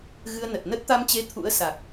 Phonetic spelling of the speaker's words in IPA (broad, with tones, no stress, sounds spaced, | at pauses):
ɣ ɨ˧ ə̯ n ə˨˩ t̚ n ə˦˥ t̚ t̪ a˧ m t͡ɕ e˧ t̪ʰ ṵ˧˥ ə̯ s a˨˩ k̚